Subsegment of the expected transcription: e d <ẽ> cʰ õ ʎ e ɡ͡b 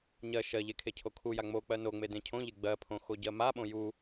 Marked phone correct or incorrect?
correct